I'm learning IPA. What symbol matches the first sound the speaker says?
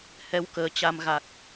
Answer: h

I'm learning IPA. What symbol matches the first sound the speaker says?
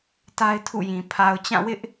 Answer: t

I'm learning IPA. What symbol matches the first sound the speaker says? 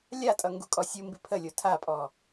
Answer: lʲ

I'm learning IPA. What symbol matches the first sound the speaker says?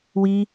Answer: w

